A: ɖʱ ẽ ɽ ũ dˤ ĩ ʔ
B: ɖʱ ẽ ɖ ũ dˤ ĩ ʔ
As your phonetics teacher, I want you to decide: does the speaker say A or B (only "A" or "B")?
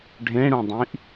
A